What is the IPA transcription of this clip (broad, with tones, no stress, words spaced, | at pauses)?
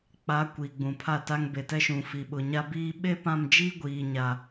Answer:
k͡pa˨˦ kʷiː˨ɡ͡bũ˨pʰa˦˨ta˦ŋ be˨tɛ˦ʃũ˨ fi˨ɓʊ˨ ɲa˦biː˦ ɓe˦pã˦˨md͡ʒiː˦ ɡʷiː˨ɲa˨